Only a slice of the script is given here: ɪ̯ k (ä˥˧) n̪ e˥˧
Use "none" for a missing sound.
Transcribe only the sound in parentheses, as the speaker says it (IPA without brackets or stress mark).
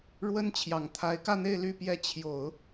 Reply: ä˥˧